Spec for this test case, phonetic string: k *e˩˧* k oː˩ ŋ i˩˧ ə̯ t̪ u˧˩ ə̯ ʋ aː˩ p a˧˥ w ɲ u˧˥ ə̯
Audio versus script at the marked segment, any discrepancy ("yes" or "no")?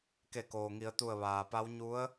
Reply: yes